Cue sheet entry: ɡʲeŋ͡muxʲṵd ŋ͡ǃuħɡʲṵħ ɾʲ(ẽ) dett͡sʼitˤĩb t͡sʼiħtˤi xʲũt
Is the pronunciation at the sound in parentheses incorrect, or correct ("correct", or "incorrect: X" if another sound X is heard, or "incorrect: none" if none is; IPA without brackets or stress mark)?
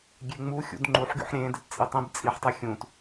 correct